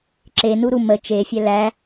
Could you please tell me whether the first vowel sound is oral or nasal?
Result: oral